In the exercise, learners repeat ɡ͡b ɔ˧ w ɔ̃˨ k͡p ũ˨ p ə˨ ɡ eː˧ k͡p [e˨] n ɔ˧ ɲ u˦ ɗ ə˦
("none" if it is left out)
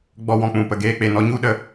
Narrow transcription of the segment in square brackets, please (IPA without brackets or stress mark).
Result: e˨